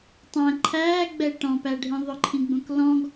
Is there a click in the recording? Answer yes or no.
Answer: yes